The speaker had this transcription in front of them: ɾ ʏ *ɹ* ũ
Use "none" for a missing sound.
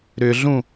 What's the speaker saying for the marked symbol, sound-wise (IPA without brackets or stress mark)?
ɮ